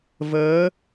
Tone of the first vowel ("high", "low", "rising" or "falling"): rising